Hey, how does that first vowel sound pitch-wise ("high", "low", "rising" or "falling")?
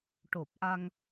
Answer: low